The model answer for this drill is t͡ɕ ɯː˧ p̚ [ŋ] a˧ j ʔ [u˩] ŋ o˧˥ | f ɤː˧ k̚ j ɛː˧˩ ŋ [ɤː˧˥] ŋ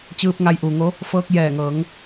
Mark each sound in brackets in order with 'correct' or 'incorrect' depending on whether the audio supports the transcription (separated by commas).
correct, correct, incorrect